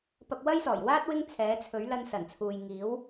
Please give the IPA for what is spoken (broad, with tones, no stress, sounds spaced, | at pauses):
p ɐ˧ p̚ w ɐ˥ j s ɔː˨˩ j w aː˥ t̚ w ɪ˥ ŋ t͡sʰ ɛː˨˥ t͡sʰ ɵ˨˥ ɥ l ɐ˧ n s ɐ˨˩ n t͡sʰ uː˨ j ŋ iː˨˥ w